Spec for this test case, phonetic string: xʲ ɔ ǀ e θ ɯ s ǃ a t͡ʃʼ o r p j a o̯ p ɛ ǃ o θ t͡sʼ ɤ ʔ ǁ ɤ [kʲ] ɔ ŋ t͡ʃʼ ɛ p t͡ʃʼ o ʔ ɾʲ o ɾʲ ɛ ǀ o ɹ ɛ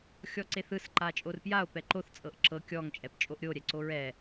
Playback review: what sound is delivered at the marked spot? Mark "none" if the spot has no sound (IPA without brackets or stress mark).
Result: kʲ